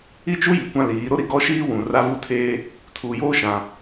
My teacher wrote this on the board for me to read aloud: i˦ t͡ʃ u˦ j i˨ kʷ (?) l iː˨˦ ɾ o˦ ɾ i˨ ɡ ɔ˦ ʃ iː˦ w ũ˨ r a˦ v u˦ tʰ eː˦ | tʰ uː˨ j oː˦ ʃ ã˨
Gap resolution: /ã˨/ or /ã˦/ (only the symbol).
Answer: ã˦